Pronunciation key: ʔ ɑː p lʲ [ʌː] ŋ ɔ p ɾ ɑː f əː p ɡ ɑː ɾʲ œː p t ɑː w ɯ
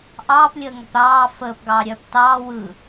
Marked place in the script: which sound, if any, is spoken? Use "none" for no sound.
əː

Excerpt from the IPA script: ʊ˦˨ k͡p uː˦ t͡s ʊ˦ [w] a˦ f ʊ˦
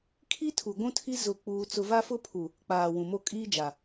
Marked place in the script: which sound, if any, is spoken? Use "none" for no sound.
v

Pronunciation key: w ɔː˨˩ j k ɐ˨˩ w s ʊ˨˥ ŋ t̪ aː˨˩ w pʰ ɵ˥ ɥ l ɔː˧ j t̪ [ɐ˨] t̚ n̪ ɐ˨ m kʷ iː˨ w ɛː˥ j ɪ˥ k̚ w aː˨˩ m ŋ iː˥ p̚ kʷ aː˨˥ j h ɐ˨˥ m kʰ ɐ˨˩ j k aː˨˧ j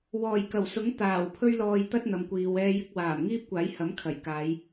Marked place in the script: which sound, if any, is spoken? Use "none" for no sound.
ɐ˥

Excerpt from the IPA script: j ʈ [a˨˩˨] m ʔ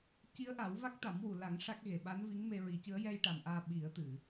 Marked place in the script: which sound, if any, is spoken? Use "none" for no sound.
a˨˩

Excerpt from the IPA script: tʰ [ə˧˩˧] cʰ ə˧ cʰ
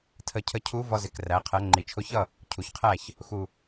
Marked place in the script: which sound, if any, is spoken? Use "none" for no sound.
ə˧˩˧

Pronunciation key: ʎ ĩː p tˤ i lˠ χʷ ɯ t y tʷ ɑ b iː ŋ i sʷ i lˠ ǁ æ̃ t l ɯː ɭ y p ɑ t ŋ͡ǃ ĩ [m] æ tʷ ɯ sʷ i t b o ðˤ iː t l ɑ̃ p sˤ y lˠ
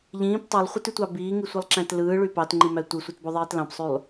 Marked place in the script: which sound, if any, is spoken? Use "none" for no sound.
m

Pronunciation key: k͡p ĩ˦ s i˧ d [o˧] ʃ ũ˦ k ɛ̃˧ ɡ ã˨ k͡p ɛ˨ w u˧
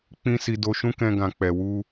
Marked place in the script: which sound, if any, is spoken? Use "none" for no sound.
o˧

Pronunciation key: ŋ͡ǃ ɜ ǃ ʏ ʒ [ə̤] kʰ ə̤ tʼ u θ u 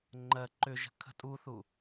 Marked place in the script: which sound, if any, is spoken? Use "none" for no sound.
ə̤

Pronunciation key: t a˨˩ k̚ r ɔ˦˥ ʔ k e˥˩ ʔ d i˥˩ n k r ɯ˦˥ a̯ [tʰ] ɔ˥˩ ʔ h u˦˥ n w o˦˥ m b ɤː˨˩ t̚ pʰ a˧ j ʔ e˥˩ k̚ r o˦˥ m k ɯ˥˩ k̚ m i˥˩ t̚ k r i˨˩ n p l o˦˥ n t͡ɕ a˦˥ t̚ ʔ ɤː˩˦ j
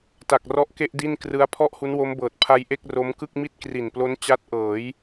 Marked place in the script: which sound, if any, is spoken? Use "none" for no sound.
pʰ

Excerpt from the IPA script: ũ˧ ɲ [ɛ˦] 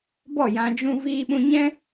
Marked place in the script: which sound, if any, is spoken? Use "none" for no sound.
ɛ̃˦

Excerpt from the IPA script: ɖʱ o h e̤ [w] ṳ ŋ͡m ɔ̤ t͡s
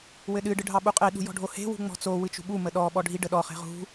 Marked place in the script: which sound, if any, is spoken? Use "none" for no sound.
w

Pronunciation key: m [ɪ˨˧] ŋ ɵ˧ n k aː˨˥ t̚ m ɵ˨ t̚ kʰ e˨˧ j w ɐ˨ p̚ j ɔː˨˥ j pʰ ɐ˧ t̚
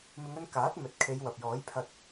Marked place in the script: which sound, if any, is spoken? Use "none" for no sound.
ɪ˨˧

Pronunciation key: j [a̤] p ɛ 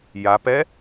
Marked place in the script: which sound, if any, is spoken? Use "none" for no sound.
a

